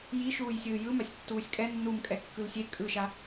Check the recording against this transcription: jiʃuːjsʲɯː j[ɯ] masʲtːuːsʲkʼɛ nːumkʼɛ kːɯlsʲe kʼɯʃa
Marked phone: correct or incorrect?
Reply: correct